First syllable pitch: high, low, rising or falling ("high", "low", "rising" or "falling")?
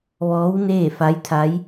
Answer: rising